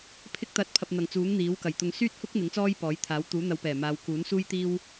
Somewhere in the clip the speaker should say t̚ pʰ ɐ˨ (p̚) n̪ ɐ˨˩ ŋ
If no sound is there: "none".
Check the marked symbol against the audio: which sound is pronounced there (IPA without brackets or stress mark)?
p̚